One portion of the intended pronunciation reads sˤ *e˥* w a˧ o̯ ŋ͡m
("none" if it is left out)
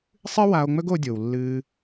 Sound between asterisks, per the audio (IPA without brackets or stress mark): ɨ˥